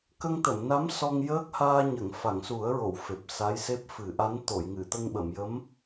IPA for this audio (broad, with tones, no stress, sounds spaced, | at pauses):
k ə˧ ŋ t̪ ə˨˩˨ m n a˧˥ m s ɔ˧ ŋ j əː˦˥ k̚ h aː˧ ɲ ə˨˩˨ ŋ f a˨˩˨ ŋ s u˨˩˦ ə̯ ɹ o˨˩˨ w f e˨˩ p̚ s a˧˥ j s e˦˥ p̚ f ɨ˨˩˦ ʔ a˧˥ n t̪ o˨˩˨ j ŋ ɨ˨˩˨ t̪ ə˧ ŋ ɓ ə˨˩˨ m j ə˧˥ m